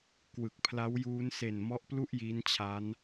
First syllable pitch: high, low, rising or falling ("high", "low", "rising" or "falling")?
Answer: low